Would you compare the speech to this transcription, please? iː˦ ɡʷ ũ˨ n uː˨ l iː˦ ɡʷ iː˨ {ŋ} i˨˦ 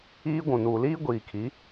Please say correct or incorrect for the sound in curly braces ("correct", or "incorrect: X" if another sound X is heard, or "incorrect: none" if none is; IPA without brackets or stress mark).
incorrect: kʰ